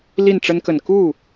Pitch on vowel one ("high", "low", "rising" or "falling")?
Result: falling